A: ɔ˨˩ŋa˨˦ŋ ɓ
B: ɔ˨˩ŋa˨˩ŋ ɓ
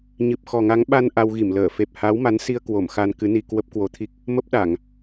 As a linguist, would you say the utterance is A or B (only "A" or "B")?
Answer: A